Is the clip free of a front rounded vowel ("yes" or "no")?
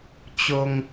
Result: yes